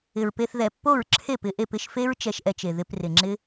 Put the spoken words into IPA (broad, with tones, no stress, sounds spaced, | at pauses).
ɪ˨ ɹ p e˧ θ ð ɛ˨ pː o˦˨ ɹ ǁʰ e˦˨ p ɪ˨˦ ʔ e˧ p ɪ˧ ʃ f e˦ ɹ t͡ʃ ɛ˧ ʃ ʔ ɛ˧ t͡ʃ e˨ ð ɪ˧ p r ɪ˨ ŋ͡ǁ ɪ˦